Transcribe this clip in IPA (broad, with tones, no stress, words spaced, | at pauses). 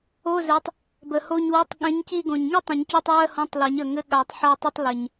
o˧˥˧zɛ˨˦tˤ | bə˨˩ho˦˨ɲwɛ˧˥˧tˤ ɠɛ̃˨˦ɲci˦˨ɡõ˨˩ɲ ŋi˥tˤĩ˨˩˦ɲcɔ˧˥˧tˤ wɜ˥hõ˧˥˧tˤlɛ˨˩˦ɲ ə˨˩ŋɘ˧˥˧ ɠa˨˩˦tˤ ħɜ˦˨tˤə˥tˤlɘ˨˩ɲ